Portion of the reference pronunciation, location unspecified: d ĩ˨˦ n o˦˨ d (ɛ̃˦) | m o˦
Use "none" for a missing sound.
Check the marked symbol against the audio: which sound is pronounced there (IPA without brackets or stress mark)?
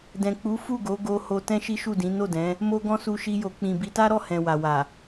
ɛ̃˨˦